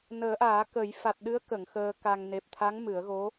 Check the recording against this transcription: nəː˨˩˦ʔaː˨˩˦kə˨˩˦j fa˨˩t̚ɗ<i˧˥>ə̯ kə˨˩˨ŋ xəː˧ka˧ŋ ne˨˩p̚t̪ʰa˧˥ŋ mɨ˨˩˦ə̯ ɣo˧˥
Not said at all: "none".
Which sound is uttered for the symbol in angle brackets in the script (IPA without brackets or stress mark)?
ɨ˧˥